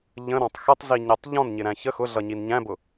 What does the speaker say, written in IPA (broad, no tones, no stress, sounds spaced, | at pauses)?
ʎ ə̃ ɾ ɔ̃ tˤ x ə tˤ z i ɲ ɛ tˤ ʎ ɔ̃ n ɲ ɪ ɾ æ̃ ç ə x ʊ ɮ ʌ ɲ i n ɲ æ̃ b ʊ